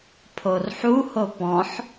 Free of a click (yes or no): yes